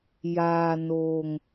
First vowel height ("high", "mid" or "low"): low